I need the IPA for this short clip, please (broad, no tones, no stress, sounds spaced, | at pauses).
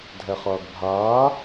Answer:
dʱ ɛ χ ʌː ɡ bʱ aː